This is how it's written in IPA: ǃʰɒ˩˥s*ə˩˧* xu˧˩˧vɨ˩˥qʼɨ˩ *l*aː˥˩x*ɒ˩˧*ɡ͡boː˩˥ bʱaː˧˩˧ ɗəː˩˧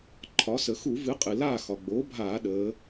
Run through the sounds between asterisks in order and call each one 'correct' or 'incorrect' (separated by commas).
correct, correct, incorrect